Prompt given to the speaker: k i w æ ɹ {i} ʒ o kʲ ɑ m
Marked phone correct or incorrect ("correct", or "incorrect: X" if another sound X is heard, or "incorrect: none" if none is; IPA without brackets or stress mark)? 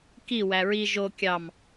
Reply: correct